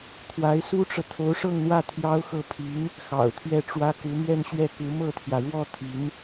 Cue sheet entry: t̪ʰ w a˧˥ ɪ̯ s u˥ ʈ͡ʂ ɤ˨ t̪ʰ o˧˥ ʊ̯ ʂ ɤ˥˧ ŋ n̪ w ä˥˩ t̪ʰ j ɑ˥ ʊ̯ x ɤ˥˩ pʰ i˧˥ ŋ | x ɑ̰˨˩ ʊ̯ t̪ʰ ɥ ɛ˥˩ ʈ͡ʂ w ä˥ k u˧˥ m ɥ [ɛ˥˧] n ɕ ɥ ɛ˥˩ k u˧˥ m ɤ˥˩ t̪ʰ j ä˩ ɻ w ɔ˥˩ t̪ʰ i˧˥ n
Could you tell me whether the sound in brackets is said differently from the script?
no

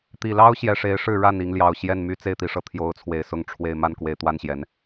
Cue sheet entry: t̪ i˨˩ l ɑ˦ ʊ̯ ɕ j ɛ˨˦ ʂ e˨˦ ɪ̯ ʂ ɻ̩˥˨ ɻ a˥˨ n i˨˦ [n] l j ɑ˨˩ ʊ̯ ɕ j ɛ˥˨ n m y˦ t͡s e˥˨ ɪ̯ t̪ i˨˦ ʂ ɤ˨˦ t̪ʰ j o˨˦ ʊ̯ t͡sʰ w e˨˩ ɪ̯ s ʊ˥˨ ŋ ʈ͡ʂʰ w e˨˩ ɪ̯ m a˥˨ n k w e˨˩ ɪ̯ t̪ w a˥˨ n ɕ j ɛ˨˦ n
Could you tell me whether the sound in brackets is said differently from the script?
yes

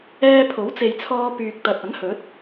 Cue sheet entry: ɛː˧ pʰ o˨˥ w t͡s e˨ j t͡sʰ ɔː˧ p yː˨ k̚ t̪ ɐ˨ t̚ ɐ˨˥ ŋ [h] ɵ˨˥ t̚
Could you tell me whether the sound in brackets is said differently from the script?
no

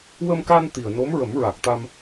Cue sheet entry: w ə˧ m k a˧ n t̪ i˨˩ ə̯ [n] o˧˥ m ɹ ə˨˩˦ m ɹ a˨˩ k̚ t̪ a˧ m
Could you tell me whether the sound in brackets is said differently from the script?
no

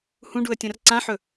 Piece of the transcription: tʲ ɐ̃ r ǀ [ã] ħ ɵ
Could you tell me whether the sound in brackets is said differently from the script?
no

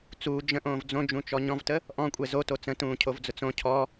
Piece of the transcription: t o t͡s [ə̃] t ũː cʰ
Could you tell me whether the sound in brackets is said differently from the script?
no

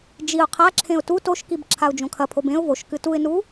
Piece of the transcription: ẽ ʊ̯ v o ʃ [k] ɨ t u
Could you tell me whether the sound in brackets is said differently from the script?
no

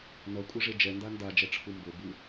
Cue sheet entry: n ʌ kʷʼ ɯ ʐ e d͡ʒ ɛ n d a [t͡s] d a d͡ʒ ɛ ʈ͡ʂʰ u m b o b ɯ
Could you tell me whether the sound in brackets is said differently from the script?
yes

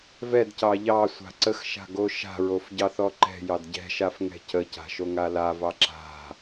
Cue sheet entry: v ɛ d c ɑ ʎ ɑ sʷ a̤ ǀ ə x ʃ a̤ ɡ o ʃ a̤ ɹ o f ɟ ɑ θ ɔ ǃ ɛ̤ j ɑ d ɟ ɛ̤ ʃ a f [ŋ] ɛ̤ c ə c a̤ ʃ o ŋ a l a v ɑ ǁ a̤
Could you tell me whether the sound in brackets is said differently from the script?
no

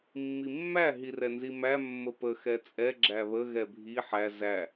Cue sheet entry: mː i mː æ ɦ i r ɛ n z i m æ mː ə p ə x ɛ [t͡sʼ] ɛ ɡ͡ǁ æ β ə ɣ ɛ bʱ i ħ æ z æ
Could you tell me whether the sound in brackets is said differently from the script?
no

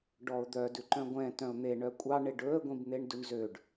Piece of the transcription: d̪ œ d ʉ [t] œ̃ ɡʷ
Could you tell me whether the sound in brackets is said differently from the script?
yes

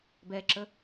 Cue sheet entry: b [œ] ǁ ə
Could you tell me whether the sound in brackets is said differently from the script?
yes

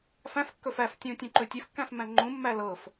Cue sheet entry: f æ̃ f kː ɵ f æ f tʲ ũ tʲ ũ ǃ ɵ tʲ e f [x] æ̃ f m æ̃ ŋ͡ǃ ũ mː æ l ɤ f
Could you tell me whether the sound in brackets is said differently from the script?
yes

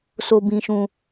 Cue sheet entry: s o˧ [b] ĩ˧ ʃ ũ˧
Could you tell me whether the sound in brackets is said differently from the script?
no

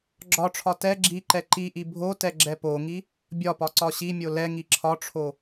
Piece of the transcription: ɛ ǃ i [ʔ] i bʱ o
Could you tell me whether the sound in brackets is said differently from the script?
no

